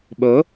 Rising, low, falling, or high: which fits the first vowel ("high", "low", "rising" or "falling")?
rising